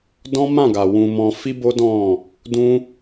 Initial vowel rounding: rounded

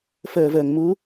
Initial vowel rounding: unrounded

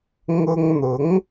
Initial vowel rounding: rounded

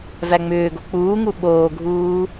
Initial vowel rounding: unrounded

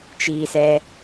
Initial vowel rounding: unrounded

